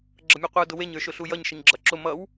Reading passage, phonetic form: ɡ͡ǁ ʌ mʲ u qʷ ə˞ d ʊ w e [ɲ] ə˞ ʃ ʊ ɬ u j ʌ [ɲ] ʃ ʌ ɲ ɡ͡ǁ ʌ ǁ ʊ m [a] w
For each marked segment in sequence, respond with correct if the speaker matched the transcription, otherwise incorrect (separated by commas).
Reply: correct, correct, incorrect